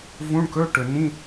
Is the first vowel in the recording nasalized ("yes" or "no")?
yes